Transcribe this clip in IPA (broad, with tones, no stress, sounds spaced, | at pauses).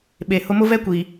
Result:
ɓ e˨ h ʊ˦ m ʊ˦ v ɛ˦ kʷ i˨